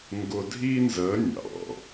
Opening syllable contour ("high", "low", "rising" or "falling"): low